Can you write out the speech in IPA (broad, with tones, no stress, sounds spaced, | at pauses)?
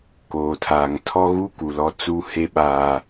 k oː˨ tʰ aː˨ ŋ tʰ ɔ˦ ɣ u˦ k u˨ l ɔ˦ t͡s u˦ h e˦ ɓ aː˨